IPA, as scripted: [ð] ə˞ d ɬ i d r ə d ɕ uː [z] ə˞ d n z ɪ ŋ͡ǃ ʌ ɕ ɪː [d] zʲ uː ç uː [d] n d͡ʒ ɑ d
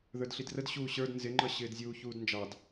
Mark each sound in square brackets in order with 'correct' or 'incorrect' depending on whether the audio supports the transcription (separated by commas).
correct, incorrect, correct, correct